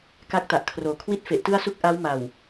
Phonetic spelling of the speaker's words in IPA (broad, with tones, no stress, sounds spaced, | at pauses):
k a˦˥ k̚ t a˨˩ ʔ kʰ r oː˨˩ kʰ w i˥˩ t̚ f e˨˩ ʔ t ɯ˥˩ a̯ s u˥˩ k̚ ʔ a˦˥ w m a˨˩ w